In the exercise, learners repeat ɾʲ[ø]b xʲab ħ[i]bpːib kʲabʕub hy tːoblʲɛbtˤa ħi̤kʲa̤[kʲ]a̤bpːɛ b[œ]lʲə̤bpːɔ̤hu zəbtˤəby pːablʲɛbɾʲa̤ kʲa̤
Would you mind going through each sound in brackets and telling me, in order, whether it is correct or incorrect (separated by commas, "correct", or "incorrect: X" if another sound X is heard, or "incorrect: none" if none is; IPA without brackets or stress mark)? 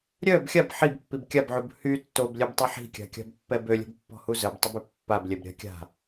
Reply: incorrect: œ, correct, correct, incorrect: ø